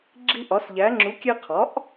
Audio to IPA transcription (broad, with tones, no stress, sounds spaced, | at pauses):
ɡ͡ǁ i˧ ʔ ɒ˩˥ s ʎ æ˩˥ ŋ͡ǁ u˩˥ kʲ e˧ qʰ ɒ˩˥ ʔ